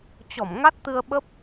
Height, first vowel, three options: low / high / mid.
mid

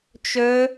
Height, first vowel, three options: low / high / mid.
mid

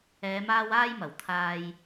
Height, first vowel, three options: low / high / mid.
mid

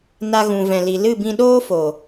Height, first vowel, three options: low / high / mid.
low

